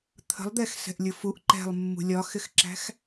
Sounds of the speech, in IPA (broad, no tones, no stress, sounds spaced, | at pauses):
t̪ʰ ə̤ lˠ d̪ ɛ x s ɛ̤ ʔ lʲ ʊ f u ʔ ǃ ɛ̤ lˠ mː ṳ lʲ ɒ x ɪ x ǁ æ̤ x